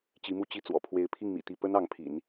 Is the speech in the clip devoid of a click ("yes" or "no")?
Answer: yes